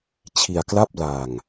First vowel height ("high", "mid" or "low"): high